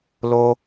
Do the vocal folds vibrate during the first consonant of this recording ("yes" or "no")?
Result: yes